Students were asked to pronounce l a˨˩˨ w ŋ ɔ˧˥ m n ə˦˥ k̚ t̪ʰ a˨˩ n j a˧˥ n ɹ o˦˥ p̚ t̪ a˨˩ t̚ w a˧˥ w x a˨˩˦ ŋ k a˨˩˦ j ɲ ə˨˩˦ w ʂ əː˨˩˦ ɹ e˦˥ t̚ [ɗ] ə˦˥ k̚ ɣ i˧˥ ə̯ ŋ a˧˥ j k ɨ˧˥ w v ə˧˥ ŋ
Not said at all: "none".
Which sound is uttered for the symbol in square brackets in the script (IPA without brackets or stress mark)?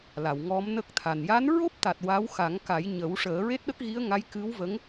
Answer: ɗ